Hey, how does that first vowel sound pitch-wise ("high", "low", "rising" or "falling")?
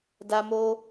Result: high